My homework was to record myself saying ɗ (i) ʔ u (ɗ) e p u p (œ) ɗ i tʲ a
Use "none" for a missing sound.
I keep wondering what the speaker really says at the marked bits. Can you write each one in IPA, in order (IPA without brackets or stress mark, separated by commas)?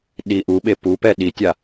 i, ɓ, ɛ